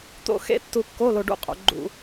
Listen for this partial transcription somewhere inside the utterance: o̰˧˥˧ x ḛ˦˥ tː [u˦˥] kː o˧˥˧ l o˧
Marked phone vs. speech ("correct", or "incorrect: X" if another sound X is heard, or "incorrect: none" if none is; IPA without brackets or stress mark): incorrect: u˧